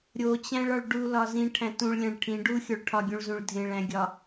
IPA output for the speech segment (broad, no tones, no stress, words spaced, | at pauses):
ɾʲot͡ɕæ̃ɭɒɭ ɖulɒ zĩʈʰæ̃ tũɭlʲæ̃ɭ ʈʰĩ ɖuxʲoɭ ʈʰɒɡʲũɭzũɭ dʱẽɭæ̃ɡʲɒ